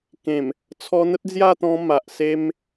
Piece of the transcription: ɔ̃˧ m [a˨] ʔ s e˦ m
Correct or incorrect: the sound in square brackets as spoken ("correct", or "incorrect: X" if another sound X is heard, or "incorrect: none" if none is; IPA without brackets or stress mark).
correct